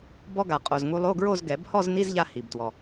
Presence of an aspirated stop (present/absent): absent